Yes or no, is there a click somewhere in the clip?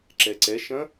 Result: yes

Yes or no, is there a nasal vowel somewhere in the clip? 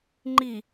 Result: no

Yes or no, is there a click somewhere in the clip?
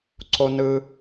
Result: yes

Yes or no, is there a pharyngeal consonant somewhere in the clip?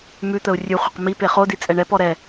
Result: no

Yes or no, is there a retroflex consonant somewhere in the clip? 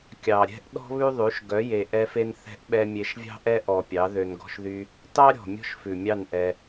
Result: no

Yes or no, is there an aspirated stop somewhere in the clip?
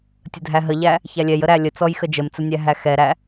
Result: no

